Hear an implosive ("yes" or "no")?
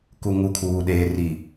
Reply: yes